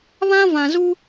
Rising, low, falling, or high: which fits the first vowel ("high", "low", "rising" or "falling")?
high